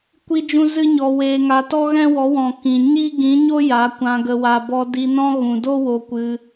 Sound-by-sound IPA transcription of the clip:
kʷ i˦ d͡ʒ ũ˦ z ɨ˦ ɲ ɔ˧ w eː˧ ŋ a˧ t ɔ˦ ɣ ɛ̃˦ w ɔ˨˦ w ɔ̃˨ k ĩ˨ ɲ i˦ ɡ ĩ˨˦ ɲ o˦ j a˨˦ kʷ ã˧ ɡ ə˨ w a˨ b ɔ˧ d i˧ n ɔ̃˦ ɣ ũ˨ d o˦ w o˧ kʷ ɨ˧

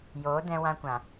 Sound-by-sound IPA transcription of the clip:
j oː˨˦ d ɛ̃˧ w ã˧ kʷ ã˨

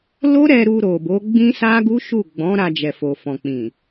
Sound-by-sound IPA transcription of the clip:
l o˦ ɾ ɛ˧ ɾ u˧ ɾ o˨ b o˨˦ ɡ͡b ĩ˦ s a˦ ɡ u˦ ʃ u˦˨ ɡ͡b ɔ̃˨˦ ɾ a˧ d͡ʒ ɛ˨ f o˨ f ɔ̃˨ k͡p ĩ˨

